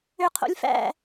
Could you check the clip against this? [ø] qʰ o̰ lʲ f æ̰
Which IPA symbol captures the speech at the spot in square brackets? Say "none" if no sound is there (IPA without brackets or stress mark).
ø